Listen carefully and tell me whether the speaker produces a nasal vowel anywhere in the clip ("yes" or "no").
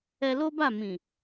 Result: yes